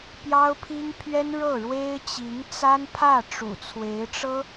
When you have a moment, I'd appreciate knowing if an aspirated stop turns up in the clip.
yes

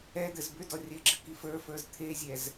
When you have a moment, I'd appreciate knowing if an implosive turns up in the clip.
no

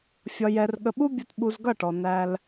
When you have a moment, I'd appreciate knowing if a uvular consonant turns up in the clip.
no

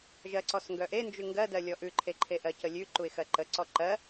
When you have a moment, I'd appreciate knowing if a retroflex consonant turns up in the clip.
no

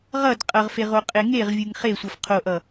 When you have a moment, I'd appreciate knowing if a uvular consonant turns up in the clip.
yes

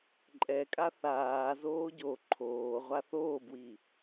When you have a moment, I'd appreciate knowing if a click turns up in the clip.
yes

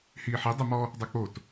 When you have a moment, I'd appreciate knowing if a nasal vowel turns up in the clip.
no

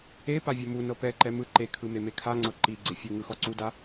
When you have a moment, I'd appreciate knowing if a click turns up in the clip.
yes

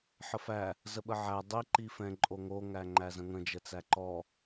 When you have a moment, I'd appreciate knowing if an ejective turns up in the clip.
yes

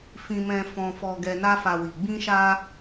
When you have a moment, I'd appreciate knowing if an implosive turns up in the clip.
no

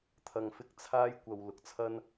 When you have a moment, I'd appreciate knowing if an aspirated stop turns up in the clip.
yes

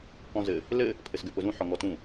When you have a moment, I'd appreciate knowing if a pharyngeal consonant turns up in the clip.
yes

